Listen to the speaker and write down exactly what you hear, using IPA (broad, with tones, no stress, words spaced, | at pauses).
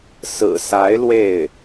sɹ̩˨˩sa˧˥ɪ̯ lwe˥˩ɪ̯